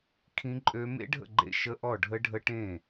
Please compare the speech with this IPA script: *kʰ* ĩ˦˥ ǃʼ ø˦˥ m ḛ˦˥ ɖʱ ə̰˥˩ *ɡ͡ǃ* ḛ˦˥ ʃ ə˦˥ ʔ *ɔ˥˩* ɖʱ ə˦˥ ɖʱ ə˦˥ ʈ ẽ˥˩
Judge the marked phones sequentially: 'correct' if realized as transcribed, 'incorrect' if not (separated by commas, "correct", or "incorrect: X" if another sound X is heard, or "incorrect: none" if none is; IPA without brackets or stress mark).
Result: correct, correct, correct